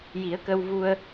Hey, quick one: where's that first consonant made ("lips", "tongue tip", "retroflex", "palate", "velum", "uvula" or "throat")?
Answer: palate